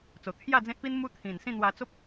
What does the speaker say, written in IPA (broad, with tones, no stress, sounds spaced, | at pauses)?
t͡s o˨˩ t̪ʰ j a˥˧ d͡z ẽ˦ t̚ p i˦ n m u˦ t̪ʰ ĩ˨˩ n s ĩ˥˧ n̪ w a˧ t͡s o˦ p̚